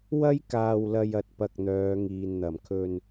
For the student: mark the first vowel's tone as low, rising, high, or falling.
high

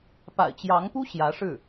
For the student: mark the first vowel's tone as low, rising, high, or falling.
low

